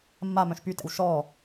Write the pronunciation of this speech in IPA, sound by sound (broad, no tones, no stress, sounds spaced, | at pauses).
mː a m œ̃ ʃ p y t ɛ̰ w ʃ ɔ